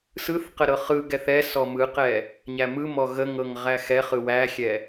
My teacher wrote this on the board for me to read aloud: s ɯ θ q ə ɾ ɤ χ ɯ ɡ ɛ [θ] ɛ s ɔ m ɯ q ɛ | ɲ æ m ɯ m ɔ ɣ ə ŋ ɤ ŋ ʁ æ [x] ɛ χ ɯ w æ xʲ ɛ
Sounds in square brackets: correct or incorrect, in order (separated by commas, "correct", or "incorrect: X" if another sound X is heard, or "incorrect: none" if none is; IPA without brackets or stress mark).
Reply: correct, correct